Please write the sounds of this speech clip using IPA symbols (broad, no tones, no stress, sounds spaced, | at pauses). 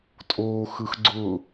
tʼ oː x ɯ x ɡ͡ǀ ʊ